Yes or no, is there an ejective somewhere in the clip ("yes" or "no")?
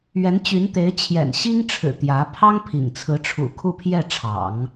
no